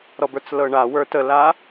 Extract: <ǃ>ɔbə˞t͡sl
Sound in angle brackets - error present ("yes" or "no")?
yes